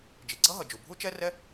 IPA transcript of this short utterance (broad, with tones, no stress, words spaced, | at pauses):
d͡ʒi˩ɡ͡ǀʌ˥ɦʌ˩d͡ʒu˩ bʱu˥t͡ʃɛ˥rɛ˥